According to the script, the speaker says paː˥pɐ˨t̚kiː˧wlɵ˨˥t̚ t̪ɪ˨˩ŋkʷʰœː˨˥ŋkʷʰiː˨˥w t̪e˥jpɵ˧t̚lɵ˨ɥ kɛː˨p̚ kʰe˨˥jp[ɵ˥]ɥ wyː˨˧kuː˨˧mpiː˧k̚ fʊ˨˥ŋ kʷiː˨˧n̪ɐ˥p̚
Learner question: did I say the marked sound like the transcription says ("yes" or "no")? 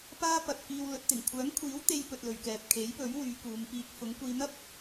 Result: no